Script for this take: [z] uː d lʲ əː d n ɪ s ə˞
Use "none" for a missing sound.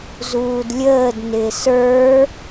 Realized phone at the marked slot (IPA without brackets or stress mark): z